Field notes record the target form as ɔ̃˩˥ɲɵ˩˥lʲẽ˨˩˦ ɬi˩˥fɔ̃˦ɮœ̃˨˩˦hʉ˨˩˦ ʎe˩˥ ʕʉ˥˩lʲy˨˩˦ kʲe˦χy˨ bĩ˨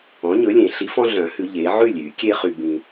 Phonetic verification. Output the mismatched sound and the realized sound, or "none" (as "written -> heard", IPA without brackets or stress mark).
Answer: none